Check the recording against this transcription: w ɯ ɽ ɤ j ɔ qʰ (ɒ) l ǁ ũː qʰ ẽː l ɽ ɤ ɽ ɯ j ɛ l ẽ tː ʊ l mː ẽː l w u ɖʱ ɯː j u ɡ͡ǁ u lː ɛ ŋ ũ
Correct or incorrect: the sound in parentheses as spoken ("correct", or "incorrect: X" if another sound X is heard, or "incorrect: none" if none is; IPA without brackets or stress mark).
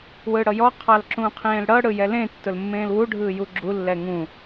incorrect: ɑ